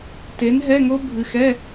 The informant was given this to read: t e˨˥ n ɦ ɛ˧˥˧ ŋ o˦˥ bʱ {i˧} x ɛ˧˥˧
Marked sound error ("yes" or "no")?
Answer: yes